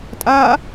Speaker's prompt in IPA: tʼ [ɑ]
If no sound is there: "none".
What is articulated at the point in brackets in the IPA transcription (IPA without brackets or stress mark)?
a